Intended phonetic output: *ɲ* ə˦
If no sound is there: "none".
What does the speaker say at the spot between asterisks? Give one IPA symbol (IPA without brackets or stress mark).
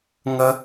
ŋ